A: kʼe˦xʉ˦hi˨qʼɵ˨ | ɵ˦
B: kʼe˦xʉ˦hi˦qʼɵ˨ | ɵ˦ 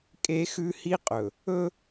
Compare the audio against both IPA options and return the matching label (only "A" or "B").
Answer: B